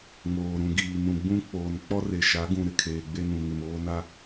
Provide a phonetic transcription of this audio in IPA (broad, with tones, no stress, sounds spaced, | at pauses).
ŋ oː˨ ɾ ũ˨ ɡ iː˨ n ũ˨ ɡ͡b ũ˦ k͡p oː˨ n k͡p ɔ˦ r e˨ ʃ a˨˦ ɡ ũ˨ ɾ ɪ˨ kʰ eː˨ ɡ͡b e˦ n ũ˨ ŋ ɪ˨ m oː˦ n a˦